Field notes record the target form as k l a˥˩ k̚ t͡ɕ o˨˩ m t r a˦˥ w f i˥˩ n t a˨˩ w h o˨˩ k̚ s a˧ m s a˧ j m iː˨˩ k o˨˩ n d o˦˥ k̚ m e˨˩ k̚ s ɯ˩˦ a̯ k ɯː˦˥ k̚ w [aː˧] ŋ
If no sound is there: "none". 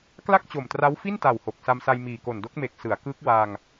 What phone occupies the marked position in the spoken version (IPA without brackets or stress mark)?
aː˧